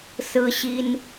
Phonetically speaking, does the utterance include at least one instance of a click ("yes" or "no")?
no